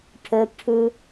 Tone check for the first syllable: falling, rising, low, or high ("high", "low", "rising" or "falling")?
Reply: high